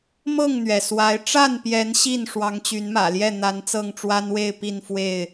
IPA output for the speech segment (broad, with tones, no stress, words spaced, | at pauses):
mɤ˥˨ŋn̪ɥɛ˩swa˨˦ɪ̯ ʈ͡ʂa˥˨npjɛ˨˦n ɕi˥˨n ʂwɑ˨˦ŋt͡ɕy˨˦nmä̰˨˩ljɛ˥˨ n̪a˨˦nt͡sɤ˥˨ŋʈ͡ʂwa˦nwe˥˨ɪ̯ pi˥˨nfwe˥˨ɪ̯